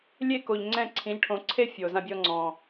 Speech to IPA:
lʲe˥˩ko˩ʎ ŋ͡ǀɛ̃˥˩ǀʰĩ˩˥ʎʈʰõ˩˥ ǀʰe˥ fʲo˩ zã˧bʲɔ˧ŋ͡ǀɔ̃˩

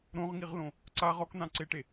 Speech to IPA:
ɾõʁŋiʁlõ | ǀaʁ ɔkn̪ãǀeʈe

